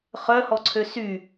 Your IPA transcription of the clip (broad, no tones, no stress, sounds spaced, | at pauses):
χ œ h ɔ ǀʰ ø s y